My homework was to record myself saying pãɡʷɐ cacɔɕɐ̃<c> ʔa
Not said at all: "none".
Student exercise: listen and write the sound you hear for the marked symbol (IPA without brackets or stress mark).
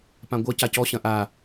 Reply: none